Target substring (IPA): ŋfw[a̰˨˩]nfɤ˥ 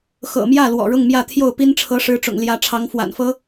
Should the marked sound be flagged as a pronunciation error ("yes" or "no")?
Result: no